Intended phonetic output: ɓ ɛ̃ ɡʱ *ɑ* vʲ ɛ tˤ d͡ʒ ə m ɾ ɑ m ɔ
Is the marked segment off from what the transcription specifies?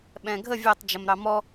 yes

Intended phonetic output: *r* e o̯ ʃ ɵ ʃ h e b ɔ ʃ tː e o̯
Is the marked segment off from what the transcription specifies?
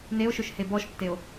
yes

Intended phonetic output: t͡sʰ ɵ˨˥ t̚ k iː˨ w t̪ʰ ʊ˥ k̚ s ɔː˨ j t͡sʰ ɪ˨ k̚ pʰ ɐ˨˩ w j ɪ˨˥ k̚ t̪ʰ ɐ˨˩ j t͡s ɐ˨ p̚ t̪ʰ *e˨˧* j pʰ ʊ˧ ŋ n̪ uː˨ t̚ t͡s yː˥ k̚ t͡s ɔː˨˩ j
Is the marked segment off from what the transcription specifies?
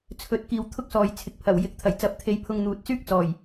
no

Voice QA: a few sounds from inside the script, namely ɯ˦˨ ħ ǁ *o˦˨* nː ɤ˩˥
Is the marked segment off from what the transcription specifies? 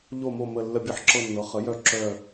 yes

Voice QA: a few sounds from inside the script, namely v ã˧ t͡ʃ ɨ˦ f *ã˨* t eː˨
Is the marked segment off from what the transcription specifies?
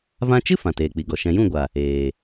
no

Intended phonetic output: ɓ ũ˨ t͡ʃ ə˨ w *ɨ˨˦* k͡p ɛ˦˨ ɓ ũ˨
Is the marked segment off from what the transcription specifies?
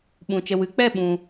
no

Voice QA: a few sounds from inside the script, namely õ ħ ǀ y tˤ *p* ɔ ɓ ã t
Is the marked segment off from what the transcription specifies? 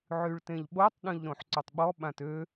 yes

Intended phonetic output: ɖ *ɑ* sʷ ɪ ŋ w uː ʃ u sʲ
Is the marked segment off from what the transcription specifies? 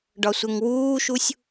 yes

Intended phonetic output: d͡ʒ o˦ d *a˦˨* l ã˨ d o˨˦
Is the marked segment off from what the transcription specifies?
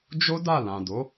no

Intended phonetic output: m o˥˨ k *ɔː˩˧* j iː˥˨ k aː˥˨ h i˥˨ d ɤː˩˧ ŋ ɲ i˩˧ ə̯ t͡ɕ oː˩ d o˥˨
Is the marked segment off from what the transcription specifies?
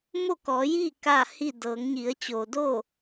no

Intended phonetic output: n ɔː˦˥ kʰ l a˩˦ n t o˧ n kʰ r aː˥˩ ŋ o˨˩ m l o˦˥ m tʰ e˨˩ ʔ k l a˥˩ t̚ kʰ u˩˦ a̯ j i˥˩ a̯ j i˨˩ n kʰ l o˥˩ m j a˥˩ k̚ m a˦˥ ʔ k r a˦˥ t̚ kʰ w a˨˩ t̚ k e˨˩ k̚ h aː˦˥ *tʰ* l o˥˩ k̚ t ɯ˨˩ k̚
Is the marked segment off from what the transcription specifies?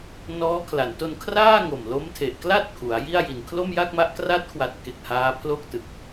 yes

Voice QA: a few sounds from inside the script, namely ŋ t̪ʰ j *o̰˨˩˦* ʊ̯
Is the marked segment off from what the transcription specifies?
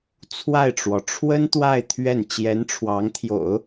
no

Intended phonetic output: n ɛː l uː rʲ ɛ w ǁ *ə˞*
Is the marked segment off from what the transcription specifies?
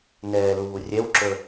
no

